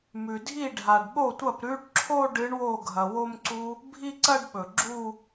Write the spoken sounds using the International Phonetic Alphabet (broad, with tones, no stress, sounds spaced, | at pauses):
m ʉ˩ dʱ i˥˩ ɖʱ a˩ ɖ ɓ o˥˩ tʷ ɐ˥˩ p ɾ ʉ˦˥ ɖ ǁʰ o˥˧ ɖ ɨ˨˥ ɳ w o˥˩ ɡʱ ɐ˩ w o˥˧ m ǀ u˦˥ | bʱ i˥˧ ǀ ɐ˥˧ ɖ ɓ ɵ˩ ɡ͡ǁ u˥˧